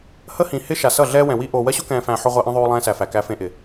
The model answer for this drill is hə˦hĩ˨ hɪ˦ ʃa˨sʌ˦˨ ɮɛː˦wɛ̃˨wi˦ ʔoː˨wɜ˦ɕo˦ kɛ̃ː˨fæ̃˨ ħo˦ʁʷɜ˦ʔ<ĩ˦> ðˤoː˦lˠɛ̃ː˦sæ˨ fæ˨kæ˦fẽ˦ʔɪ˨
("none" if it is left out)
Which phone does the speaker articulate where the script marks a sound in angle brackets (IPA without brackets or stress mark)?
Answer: ĩ˦